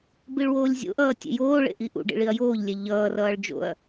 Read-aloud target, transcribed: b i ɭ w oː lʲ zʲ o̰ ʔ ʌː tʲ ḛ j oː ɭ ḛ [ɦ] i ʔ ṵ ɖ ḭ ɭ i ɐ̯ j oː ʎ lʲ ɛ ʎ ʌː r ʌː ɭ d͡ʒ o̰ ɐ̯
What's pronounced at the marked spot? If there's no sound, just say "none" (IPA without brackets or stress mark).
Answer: ʔ